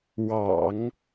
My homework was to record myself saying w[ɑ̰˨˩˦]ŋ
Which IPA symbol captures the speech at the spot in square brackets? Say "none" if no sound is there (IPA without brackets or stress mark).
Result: ɑ̰˨˩˦